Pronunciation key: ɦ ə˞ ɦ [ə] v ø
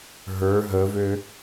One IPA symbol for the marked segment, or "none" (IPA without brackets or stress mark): ə